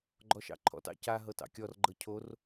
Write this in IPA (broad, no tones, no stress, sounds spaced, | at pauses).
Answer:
ɡ͡ǃ ɔ ʃ ɑ̰ ǃʰ ɔ̰ t ɑ̰ c a ɦ ɤ t ɑ̰ kʲ ɔ r ɡ͡ǃ ɤ cʰ o r